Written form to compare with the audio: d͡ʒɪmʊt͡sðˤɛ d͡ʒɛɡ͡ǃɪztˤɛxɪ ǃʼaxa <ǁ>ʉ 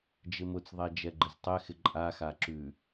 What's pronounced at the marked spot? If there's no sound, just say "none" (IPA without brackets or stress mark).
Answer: ǁ